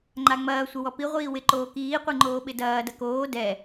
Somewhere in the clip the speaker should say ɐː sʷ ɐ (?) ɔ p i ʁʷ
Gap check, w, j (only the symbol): w